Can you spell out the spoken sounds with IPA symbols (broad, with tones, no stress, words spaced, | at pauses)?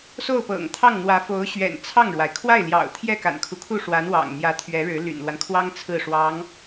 so˥˩ʊ̯pɤ̰˨˩ŋt̪ʰɑ˥˩ŋn̪wä˧˥ fo˧˥ʊ̯ɕɥɛ̰˨˩n t͡sʰɑ˥˩ŋɻwa˩ɪ̯ kʰwa˥˩ɪ̯ljɑ̰˨˩ʊ̯ t̪ʰjɛ˥˩ ka̰˨˩nkʰu˦kʰu˥˩ ʂwa˧˥n wɑ̰˨˩ŋ n̪jä˧˥t̪ʰɥɛ˧˥ɻɻ̩˧˥ ly̰˨˩nlwa˦nkʰwɑ˥ŋ t͡sʰɹ̩˥˩ʂwɑ˧˥ŋ